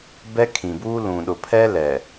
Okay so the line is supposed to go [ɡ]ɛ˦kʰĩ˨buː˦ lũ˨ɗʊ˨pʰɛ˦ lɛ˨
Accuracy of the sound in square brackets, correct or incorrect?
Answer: incorrect